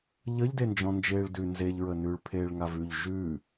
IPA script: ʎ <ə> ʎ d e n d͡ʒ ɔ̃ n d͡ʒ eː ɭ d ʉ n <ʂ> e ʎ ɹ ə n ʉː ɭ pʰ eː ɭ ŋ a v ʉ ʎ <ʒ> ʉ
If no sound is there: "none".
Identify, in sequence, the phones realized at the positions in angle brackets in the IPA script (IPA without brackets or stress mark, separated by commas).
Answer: ə, z, ʒ